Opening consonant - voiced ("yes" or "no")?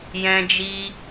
yes